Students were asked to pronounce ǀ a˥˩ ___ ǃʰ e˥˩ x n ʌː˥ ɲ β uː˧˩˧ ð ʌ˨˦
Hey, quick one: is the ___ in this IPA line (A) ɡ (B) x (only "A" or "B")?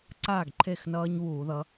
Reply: A